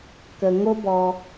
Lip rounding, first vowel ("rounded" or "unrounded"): unrounded